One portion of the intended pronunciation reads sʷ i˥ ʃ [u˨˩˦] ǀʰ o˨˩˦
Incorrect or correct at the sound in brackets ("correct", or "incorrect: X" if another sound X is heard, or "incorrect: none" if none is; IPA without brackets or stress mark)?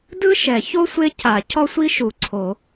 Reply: correct